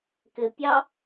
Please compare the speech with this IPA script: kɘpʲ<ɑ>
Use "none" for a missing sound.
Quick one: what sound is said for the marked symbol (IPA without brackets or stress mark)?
ɑ